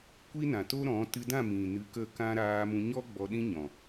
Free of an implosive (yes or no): no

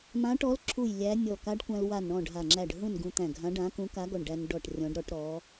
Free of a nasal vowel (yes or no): no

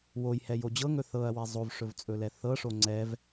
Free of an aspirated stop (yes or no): yes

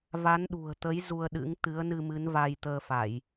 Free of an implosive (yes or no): no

